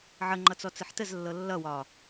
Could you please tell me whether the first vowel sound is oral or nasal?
oral